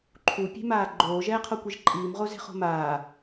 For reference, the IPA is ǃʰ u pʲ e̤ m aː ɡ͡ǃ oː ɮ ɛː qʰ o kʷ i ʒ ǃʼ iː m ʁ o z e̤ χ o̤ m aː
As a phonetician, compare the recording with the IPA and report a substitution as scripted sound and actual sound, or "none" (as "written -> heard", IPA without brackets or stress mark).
ɮ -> ʒ